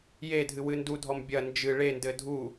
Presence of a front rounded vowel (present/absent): absent